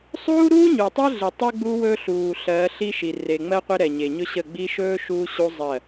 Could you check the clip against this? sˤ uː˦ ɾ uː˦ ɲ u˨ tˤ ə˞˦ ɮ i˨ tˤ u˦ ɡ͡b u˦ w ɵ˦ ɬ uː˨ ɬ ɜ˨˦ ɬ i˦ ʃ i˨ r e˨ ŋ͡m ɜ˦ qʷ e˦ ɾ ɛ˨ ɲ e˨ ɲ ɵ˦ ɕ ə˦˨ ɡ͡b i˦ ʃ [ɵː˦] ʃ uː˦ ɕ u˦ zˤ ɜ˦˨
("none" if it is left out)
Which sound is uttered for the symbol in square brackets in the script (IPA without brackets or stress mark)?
ɵː˦